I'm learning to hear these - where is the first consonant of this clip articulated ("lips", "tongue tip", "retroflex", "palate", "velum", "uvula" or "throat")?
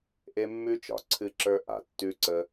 throat